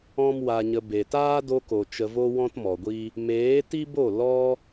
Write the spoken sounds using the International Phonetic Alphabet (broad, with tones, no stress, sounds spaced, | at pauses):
ɔ̃˦ m w a˧ ɲ ə˧ b e˨ t aː˦ d o˧ k o˨ t͡ʃ ə˧ v o˦ w ɔ̃˦ t m ɔ˨ ɡʷ i˦ | m eː˨˦ t i˦ b o˦˨ l ɔ˦